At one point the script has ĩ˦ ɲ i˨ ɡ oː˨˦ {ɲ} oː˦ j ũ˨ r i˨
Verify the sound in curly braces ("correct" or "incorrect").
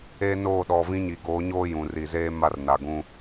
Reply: correct